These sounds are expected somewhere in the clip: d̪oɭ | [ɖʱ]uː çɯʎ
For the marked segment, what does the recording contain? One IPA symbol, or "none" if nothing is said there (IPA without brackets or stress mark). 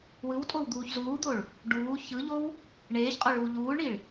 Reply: ɖ